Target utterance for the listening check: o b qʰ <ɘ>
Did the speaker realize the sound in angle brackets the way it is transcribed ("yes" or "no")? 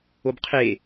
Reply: no